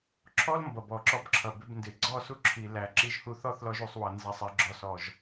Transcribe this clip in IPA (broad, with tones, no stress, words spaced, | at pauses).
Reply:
ǁʰɔ˦lmbʌ˨bɔ˨ ǁɔ˧bǁʰʌ˨bɪ˧b ndɪ˨ɡ͡ǀɔ˦˨ su˧ ǁʰi˨ læ˨ ǁi˧ʒhu˧θɔ˦θlɔ˧ʒ u˨sˤwʌ˨ nzæ˨sˤɛ˨ ɡ͡ǁɔ˨sɔ˨ʒ